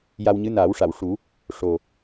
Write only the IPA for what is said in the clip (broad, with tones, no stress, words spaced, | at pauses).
ja˧wɲɨ˧˥ naː˨˩˦wʂa˨˩˨wʂu˨˩˦ | ʂo˨˩